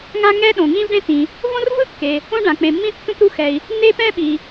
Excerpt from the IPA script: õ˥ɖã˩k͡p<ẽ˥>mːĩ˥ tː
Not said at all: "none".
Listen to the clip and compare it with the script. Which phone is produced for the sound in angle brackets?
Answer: ẽ˩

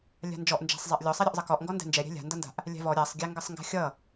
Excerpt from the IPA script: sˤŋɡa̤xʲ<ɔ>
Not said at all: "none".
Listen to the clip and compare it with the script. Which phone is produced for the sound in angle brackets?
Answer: ʌ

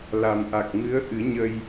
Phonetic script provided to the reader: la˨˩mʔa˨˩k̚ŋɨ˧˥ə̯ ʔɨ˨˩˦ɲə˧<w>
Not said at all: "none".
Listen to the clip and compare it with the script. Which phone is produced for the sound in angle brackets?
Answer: j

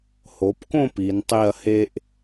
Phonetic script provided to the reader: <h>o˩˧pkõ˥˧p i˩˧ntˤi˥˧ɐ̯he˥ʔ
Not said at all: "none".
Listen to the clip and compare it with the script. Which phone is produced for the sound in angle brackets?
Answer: h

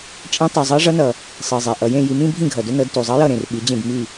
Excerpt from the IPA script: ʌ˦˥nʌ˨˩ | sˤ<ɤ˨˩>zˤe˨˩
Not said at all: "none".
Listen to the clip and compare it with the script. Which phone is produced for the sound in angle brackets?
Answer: ɤ˨˩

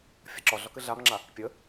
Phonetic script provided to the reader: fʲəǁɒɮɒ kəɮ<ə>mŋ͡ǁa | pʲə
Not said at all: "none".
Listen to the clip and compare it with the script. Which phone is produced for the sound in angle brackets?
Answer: a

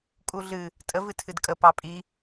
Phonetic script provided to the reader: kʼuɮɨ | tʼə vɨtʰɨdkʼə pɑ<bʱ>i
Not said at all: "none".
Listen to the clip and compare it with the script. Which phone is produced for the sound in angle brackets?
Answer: pʼ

